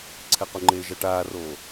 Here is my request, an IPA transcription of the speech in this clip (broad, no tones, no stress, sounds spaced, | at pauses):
ǀʰ ɛ q u ŋ͡ǃ eː ʒ a ʈ aː r oː